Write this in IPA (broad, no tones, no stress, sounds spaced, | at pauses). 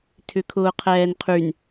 tʰ ʏ kʰ ʊː qʰ ɛː n qʰ y n